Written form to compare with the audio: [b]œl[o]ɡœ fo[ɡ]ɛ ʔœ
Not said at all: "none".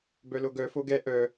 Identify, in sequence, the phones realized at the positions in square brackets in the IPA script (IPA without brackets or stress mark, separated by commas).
b, o, ɡ